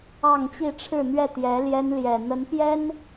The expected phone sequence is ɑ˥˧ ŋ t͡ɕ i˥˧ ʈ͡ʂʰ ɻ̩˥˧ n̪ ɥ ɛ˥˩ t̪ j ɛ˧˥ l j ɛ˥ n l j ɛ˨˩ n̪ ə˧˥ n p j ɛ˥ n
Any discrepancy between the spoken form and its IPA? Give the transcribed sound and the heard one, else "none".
none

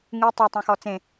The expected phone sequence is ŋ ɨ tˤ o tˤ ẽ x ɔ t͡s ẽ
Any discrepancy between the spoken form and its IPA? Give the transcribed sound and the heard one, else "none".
none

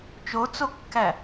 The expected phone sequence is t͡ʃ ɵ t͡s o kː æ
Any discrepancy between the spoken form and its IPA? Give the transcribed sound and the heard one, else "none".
ɵ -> o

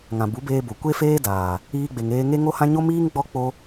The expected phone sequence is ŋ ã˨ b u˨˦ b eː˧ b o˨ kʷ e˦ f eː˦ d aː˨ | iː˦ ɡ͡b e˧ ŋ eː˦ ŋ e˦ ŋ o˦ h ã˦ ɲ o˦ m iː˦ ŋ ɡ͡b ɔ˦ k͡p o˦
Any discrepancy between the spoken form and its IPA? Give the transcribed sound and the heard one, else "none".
none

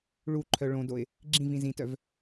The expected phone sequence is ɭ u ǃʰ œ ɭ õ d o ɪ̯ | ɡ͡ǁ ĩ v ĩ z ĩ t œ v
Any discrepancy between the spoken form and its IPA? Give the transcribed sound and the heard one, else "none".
none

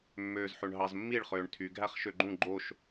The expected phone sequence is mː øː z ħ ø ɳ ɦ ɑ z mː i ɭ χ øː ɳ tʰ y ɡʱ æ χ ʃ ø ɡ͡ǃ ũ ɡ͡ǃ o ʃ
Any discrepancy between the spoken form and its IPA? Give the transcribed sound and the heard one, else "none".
none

